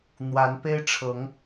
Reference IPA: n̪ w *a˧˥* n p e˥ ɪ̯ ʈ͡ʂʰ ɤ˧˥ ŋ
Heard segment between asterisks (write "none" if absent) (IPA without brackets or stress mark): a˧˥